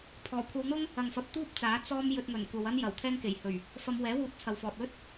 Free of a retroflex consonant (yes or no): yes